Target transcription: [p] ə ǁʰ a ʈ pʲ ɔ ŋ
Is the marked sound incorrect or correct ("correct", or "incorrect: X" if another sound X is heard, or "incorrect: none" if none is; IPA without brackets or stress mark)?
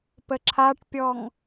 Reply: correct